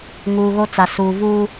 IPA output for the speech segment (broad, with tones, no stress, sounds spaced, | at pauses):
ŋ uː˨ ɣ o˦ t͡s a˨ s uː˨ v uː˦